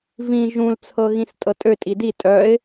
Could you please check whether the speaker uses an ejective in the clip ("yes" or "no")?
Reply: yes